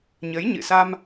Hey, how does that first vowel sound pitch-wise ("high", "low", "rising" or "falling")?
rising